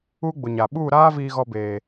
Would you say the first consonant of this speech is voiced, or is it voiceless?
voiced